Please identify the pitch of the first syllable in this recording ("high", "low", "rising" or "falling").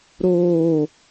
falling